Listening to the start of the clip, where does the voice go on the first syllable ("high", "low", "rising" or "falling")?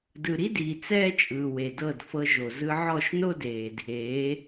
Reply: low